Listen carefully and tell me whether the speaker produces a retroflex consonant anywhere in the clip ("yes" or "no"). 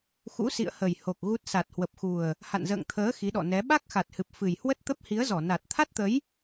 no